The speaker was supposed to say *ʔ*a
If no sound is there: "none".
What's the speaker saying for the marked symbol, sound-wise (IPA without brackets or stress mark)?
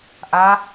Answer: ʔ